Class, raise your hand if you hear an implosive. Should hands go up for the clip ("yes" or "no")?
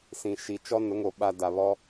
yes